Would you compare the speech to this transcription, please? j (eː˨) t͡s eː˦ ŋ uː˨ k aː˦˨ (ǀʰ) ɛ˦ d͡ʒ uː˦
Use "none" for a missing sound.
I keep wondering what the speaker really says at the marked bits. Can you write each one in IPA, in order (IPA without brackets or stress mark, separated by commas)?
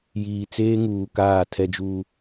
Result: iː˨, tʰ